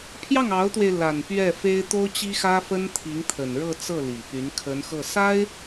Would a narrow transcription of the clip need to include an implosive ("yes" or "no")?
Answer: no